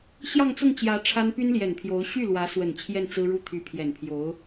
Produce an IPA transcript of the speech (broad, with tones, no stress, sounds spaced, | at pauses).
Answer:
ɕ j ɑ˥˧ ŋ t͡s ʊ˥˩ ŋ t͡ɕ j ä˧˥ ʈ͡ʂʰ a˥ n p y˥ n l j ɛ˨˩ n pʰ j o˧˥ ʊ̯ ɕ y˥˩ l w ä˧˥ s w ə˨˩ n t͡ɕʰ j ɛ˥˩ n t͡s ɹ̩˥ ɻ u˥˩ t̪ʰ y˧˥ pʰ j ɛ˨˩ n pʰ j o˧˥ ʊ̯